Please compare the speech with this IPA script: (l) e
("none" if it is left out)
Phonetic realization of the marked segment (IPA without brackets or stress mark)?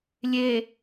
lʲ